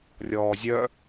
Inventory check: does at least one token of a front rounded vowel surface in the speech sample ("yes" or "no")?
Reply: yes